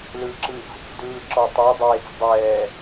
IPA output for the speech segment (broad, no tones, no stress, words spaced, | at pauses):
lɯːǁɯt͡s | dɯːǁɔ tˤa dˤeːt͡s dˤɛː